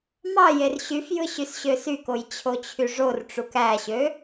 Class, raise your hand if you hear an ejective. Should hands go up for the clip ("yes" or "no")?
no